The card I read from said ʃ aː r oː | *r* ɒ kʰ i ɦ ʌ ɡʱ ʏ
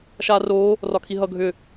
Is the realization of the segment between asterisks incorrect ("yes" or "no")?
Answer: no